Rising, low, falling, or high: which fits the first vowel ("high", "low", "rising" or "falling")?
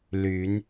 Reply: rising